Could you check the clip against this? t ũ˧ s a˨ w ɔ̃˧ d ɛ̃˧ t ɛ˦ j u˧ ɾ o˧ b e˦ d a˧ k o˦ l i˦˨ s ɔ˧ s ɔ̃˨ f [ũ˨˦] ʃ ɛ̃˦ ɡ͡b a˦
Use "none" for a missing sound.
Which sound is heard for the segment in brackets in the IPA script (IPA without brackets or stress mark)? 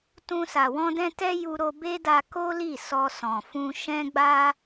ũ˧